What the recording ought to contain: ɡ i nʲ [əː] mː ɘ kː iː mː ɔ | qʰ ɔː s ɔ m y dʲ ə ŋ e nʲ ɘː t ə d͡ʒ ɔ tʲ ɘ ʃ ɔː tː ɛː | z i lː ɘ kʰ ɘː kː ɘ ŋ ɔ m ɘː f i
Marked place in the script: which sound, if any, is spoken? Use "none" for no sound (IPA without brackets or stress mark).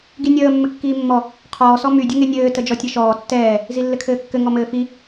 əː